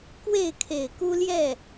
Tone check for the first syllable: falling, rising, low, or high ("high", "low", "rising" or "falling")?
falling